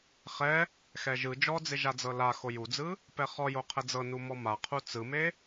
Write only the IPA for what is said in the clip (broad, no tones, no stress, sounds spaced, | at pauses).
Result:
χ ɛ | x ɛ ʒ ɯ d͡ʒ ɔ d͡z e ʒ a d͡z ɤ l a x o j u d͡z ɯ | p ɛ χ ɔ j o qʰ ɛ d͡z ɤ n u m ɔ m a qʰ u t͡s ɯ m e